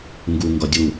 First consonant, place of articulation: velar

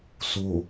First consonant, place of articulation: alveolar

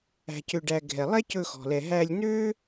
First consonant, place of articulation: palatal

